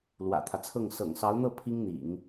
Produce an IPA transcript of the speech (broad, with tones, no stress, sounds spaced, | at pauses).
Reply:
l w ä̰˨˩ t̪ʰ ä˦ t͡sʰ ɤ˥˩ ŋ s ɤ̰˨˩ ŋ s ɑ˧˥ ʊ̯ n̪ ɤ˥˩ pʰ i˥ ŋ n̪ ḭ˨˩˦ ŋ